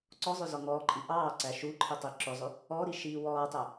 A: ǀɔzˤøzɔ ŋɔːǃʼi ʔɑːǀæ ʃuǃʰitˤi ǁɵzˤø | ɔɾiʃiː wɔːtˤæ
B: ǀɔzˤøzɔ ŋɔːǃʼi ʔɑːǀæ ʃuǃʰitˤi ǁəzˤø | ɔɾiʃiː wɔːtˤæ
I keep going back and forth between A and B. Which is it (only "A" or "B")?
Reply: A